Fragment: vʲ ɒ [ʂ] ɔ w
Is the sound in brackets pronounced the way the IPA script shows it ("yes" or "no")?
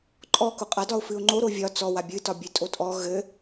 no